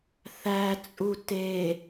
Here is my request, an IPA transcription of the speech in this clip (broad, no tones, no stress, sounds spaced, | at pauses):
θ æ t͡sʼ u t e